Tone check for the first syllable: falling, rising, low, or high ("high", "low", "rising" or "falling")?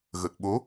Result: low